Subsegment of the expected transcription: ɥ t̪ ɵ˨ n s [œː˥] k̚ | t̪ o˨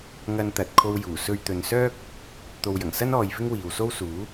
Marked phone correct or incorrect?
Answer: correct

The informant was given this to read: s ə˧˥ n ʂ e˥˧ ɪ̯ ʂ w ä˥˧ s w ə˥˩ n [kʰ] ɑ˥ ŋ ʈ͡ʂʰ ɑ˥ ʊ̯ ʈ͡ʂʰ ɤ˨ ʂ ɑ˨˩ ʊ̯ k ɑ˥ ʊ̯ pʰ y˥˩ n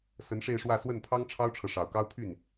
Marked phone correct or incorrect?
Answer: incorrect: pʰ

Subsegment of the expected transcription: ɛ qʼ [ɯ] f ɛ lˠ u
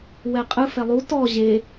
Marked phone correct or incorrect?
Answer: correct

